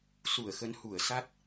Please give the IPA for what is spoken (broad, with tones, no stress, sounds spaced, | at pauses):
s u˧˩ ə̯ x ə˨˦ n h u˧˩ ə̯ s a˦˥ t̚